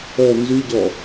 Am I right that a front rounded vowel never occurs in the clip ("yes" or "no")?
no